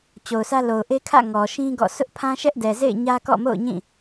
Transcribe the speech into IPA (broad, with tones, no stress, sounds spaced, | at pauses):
t͡ɕ o˨ ʊ̯ s ä˦ l o˨ ʊ̯ ʔ e˦ kʰ ä̰˦˨ ŋ ɔ˨ ʃ ĩ˦ ɡ ɔ̰˦˨ sʰ ʊ˦ ʔ pʰ ã˦ ʃ ɛ˦ ʔ d ɛ˨ z ḛ˦˨ ɪ̯ ɲ ä˦ k ɔ̰˦˨ m o̰˦˨ ʊ̯ ɲ ĩ˦˨